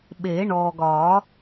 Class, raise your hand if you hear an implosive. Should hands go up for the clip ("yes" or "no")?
yes